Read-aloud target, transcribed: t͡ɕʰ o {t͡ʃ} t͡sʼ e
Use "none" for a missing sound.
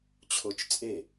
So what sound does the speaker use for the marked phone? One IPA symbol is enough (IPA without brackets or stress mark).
t͡ʃ